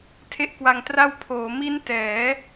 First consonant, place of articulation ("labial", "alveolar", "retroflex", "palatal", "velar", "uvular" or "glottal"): alveolar